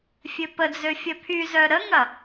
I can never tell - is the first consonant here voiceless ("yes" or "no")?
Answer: yes